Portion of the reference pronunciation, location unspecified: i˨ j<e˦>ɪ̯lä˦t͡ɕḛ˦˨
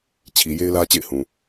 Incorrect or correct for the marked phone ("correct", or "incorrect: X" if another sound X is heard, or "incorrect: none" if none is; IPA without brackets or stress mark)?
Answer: correct